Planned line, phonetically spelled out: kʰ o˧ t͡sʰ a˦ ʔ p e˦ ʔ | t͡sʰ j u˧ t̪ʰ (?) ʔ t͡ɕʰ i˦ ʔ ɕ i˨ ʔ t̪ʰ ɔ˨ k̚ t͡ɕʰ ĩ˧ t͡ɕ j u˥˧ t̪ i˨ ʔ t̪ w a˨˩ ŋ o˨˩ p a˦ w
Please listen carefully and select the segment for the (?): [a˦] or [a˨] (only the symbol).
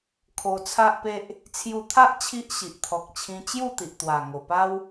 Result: a˦